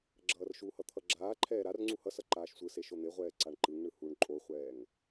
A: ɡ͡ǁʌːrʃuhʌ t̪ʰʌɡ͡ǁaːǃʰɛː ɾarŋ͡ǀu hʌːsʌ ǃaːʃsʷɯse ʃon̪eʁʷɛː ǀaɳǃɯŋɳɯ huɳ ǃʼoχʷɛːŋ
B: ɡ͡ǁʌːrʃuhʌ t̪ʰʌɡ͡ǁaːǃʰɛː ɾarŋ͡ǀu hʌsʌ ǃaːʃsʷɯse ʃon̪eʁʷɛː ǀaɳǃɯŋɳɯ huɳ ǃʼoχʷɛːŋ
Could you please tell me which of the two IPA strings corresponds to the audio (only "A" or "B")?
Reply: B